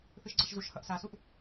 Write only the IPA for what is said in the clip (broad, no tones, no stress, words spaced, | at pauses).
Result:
θɯʃɡ͡ǀʌʃzuʃhʌʔ sasuʔ